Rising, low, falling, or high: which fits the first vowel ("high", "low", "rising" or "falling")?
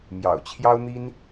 low